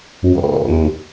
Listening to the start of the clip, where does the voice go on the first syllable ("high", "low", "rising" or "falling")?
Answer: low